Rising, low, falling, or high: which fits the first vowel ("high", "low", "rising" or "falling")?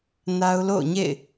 high